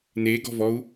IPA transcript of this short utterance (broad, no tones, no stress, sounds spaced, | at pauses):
n e ɡ ɔ̤ v ɔ u̯